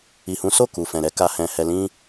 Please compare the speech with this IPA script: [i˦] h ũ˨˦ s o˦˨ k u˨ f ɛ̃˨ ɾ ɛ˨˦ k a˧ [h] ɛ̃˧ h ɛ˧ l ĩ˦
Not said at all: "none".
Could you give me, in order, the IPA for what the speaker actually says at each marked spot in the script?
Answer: i˨, h

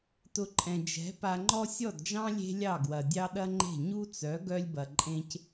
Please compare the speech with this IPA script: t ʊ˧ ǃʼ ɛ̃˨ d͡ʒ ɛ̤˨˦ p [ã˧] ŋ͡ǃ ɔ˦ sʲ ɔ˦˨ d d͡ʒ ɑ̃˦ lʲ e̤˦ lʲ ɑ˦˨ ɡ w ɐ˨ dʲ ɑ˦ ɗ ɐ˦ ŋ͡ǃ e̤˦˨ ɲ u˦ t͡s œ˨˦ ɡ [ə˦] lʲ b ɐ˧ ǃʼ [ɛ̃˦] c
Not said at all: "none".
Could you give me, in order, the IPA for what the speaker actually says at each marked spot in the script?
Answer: a˧, œ˦, ẽ˦

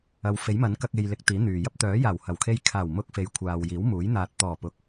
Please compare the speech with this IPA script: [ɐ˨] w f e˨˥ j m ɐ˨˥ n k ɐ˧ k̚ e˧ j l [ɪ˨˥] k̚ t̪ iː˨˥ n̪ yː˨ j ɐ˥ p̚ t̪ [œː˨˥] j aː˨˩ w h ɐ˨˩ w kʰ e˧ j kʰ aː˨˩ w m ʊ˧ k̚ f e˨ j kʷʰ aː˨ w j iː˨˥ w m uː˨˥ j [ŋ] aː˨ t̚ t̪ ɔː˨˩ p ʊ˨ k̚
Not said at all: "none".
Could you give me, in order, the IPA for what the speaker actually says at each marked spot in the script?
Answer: ɐ˨˧, ɪ˨˥, œː˨˥, n̪

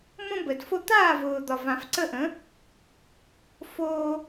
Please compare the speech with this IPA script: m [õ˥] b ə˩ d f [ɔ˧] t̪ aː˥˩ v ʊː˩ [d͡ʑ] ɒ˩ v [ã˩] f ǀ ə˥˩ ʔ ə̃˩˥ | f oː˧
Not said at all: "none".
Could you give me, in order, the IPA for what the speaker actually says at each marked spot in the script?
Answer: õ˥, o˧, d̪, ã˩

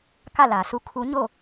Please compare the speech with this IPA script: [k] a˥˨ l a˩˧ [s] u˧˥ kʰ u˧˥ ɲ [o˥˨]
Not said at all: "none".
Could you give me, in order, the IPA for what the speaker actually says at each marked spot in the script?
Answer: k, s, o˥˨

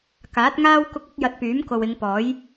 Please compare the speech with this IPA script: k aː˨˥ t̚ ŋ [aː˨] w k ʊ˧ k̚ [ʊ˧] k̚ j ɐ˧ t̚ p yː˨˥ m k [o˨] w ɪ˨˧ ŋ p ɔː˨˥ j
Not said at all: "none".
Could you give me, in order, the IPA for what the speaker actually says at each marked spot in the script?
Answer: aː˥, ʊ˨˥, o˨

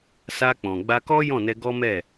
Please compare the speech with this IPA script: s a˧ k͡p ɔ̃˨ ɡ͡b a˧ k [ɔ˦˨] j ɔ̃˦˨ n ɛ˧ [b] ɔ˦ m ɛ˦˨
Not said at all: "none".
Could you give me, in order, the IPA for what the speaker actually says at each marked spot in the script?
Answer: ɔ˦, ɡ

